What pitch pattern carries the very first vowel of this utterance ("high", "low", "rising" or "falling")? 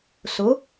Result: rising